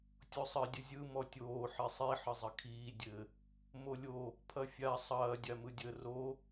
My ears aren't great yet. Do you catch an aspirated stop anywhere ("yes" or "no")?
yes